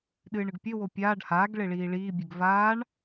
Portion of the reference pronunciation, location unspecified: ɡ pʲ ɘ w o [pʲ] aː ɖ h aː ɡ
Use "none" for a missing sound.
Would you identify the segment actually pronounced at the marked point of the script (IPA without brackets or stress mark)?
pʲ